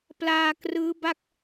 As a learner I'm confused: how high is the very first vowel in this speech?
low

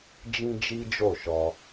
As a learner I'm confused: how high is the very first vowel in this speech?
high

